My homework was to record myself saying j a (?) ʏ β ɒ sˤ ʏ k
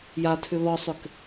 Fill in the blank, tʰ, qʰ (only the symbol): tʰ